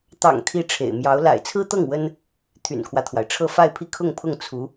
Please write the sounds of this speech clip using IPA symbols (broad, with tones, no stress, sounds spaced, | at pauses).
t̪ ɑ̰˨˩ ŋ t̪ʰ i˥ ʈ͡ʂʰ ḛ˨˩ ɪ̯ m j ɑ˧˥ ʊ̯ l a̰˨˩ ɪ̯ t͡sʰ ɹ̩˥ t̪ ɤ˥˩ ŋ w ə˥ n | t̪ʰ y̰˨˩ n kʰ w ä˦ t̪ʰ w a˩ ɪ̯ ʈ͡ʂʰ ɤ˥˧ f a˥˧ ɪ̯ pʰ i˥˧ kʰ ʊ˥˧ ŋ pʰ ʊ˥˩ ŋ t͡sʰ u˧˥